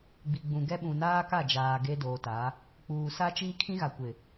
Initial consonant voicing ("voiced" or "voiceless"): voiced